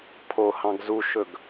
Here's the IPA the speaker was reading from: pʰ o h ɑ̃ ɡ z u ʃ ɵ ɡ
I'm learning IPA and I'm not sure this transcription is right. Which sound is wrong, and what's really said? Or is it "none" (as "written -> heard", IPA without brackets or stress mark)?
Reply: none